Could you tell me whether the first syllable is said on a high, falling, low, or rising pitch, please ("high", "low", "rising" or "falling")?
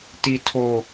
low